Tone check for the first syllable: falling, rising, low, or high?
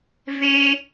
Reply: high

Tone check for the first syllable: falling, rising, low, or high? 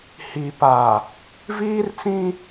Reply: low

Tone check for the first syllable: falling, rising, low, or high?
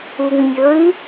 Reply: low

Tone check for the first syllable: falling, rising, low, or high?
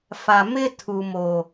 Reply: low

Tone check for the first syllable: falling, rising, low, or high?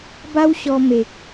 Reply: high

